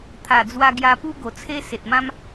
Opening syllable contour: low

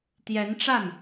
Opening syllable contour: rising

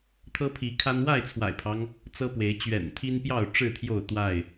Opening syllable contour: high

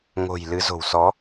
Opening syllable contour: low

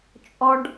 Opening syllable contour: low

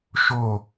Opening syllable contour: falling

